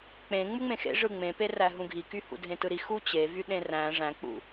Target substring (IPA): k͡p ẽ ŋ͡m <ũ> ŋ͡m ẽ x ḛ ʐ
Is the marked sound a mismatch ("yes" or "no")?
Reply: yes